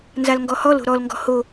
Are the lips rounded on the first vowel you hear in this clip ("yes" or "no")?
no